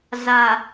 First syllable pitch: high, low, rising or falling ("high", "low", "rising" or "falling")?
low